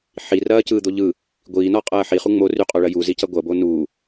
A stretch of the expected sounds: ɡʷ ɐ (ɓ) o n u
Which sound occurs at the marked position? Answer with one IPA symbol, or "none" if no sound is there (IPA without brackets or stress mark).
b